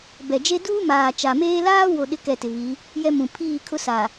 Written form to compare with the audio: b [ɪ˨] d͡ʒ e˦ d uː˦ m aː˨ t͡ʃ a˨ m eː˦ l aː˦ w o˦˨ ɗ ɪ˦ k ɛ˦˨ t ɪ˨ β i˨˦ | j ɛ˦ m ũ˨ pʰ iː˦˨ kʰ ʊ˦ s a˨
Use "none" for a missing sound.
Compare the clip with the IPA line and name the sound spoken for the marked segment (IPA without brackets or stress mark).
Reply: ɛ˨